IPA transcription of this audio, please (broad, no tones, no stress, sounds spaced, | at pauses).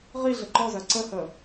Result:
ʁ i ɮ ə ǃ ɔ z ɜ ǀ ə h ə